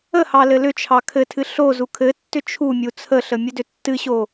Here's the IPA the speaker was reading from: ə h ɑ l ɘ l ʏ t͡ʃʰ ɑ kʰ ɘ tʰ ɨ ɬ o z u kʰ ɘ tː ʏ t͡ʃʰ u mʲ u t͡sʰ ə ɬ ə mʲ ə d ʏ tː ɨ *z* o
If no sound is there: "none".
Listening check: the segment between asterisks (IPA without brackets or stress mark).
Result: ɕ